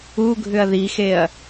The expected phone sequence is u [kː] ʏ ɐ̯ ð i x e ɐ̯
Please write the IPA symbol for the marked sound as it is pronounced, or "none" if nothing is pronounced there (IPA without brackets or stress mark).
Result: ɡʱ